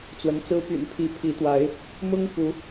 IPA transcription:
t͡s w ə˨˦ n t͡s ɹ̩˦ p y̰˨˩ n pʰ i˨˦ pʰ i˨˦ t̪ w a˨˦ ɪ̯ | m ʊ˦ ŋ f u˨˦

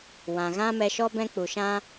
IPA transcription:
w ã˨ ɣ ã˦ m ɛ˧ ʃ ɔ˦ b ɛ̃˦ k͡p u˨ ʃ ã˦

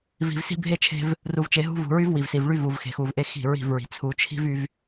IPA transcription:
v i̤˨ v s i̤˦ bʱ e˦ t͡ʃʰ e̤˦ v | r u˨ v t͡ʃ e˨ ɦ ṳ˦ v ṳ˨ ɹ y˦ v w i˨ v s i˨ v ɭ y˦ v u˨ v x e̤˨ x u˨ v ʔ e˦ x i̤˦˨ ɹ i̤˦˨ v ɹ i̤˨ t͡sʰ u˨ t͡ʃʰ i̤˦ v y˦ v

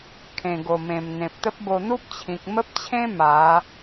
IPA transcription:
kʰ ẽ˨˩ ɡ o˨˩ m ẽ˨˩ m n̪ ẽ˨ p̚ t̪ ə˦ p̚ b o˧ n̪ u˦ p̚ t͡ɕʰ ĩ˨ k̚ m ə˦ p̚ t͡ɕʰ ẽ˦ m a˨˦

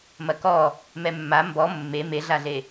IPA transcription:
m ɐ k ɔ | m ɛ mː a m b ɔ mː e m e ɮ a ɮ e

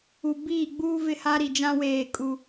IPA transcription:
u˨ b iː˦˨ ɡ͡b uː˦ v ɪ˦˨ h a˦ ɾ i˨ d͡ʒ ã˦ w eː˦˨ kʼ u˦

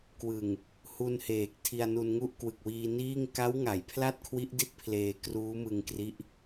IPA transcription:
k w ɯ˨˩ ŋ | h u˧ n h eː˨˩ k̚ tʰ i˧ a̯ n u˧ n ŋ u˥˩ ʔ k w ɯ˨˩ k̚ w iː˧ n iː˥˩ ŋ k a˦˥ w ŋ a˩˦ j pʰ l a˥˩ t̚ kʰ w i˦˥ ʔ d i˥˩ t̚ pʰ l eː˧ k r uː˦˥ m ɯ˧ ŋ k r i˦˥ ʔ

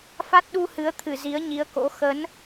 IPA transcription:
f a˦˥ t̚ ɗ u˧ h ɨ˨˦ ə̯ t̪ʰ ɨ˧˩ z i˨˦ ə̯ ɲ i˨˦ ə̯ k o̰˧˥ x ə˨˦ n

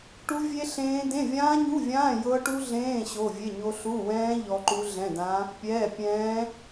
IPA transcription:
ʈ u˦˥ vʲ e˦˥ ɬ ẽː˦˥ d ẽ˧˥˧ vʲ ãː˦˥ ɲ u˧˥˧ vʲ ãː˧˥˧ j ɤ˦˥ ʈ u˦˥ ɮ ẽː˧˥˧ ɕ o˧˥˧ vʲ e˧˥˧ ɲ o˦˥ ɬ u˧˥˧ w ɛ̃ː˦˥ ʎ ɔ˦˥ ǃ u˦˥ ɮ ɛ̃˧˥˧ d ã˦˥ | pʲ ɛː˧˥˧ pʲ ɛ̃ː˦˥

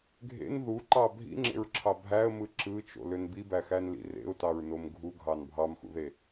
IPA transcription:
ɡʱ ḛ n ð u ǃ ɑ bʱ ḭ ŋ͡ǁ ḛ ɹ ǁʰ ɑ bʱ æ ə̯ m ɯ ǁ ɯ t͡ʃ o̰ l ø n b i b æ x æ n l ḭ r ḛ ʊ̯ t ɑ ɹ n o m ɡʱ u ɡʱ ɑ n bʱ ɑ m x ṵ ð e

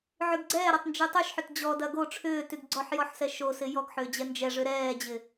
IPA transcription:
ʕ y ɡ ɡ͡ǀ ɛː ɾ ɐ tˤ n d͡ʒ y tˤ y ʃ ħ ʏ t d͡ʑ ɔ d ɐ ɡ o ʈ͡ʂʰ ʏː t y ɡ ɡ͡ǀ ɔ ħ j ɔ ħ s ɛ ʃ o s ɪ j ɔ ɡ ħ ʏː d͡ʑ ɛ n d͡ʒ ɛ ʐ ʏ ɾ ɛː d͡ʑ ɪ

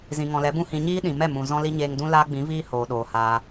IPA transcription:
z ĩ˨ ŋ ɔ̃˨ l ɛ˨˦ b ũ˦ h ĩ˧ ɲ iː˦ ɗ ĩ˨ m ɛ˦˨ m ũ˨ z ɔ̃˦ l i˦ ɲ eː˧ ŋ d ũ˦ l aː˦ ɡ͡b ĩ˨˦ v iː˦ h oː˨ ɗ oː˨ h aː˧

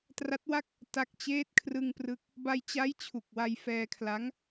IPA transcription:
t r a˦˥ t̚ w a˥˩ k̚ | t a˦˥ k̚ t͡ɕ eː˦˥ t̚ kʰ r ɯ˧ ŋ p r ɯ˦˥ k̚ | b a˧ j t͡ɕ a˦˥ j t͡ɕʰ u˨˩ k̚ w a˧ j f ɛː˧ kʰ l a˦˥ ŋ

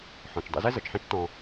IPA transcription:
ħ ɔ̃˩ t͡ʃ dˤ ḭ˧ z ɛ˥ z ɤ˩ t͡ʃ ħ ɛ̃˥ t͡ʃ t ɔ̃˧

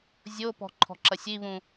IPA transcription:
zʲ o p ɔ̤ ǃʰ ɔ̤ ǁ ɐ sʲ i β ũ

